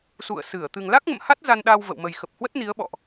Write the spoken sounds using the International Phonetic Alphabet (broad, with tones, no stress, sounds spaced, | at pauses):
s ṵ˧˨ ə̯ s ɨ˧˩ ə̯ t̪ ɨ˨˩ ŋ l a˦˥ k̚ ŋ ə̰˧˨ m h a˦˥ t̚ z a˧ n ɗ a˧ w v ə̰˧˨ w m ə˨˩ j x ə˨˩ p̚ h w ə˦˥ t̚ n i˨˦ ə̯ ɓ ɔ̰˧˨ ʔ